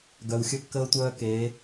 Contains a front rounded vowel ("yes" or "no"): yes